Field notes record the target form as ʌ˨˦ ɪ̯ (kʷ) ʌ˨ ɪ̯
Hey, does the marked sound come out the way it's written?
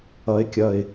no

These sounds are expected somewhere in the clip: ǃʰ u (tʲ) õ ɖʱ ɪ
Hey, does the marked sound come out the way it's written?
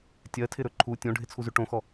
yes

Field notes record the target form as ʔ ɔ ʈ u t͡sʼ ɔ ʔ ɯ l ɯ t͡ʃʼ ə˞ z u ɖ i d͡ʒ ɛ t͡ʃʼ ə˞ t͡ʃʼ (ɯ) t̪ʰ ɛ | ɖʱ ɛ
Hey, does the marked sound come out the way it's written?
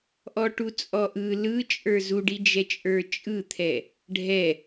yes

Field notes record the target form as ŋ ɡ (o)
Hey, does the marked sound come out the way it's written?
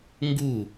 no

